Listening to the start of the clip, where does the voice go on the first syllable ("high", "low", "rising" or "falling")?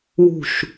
falling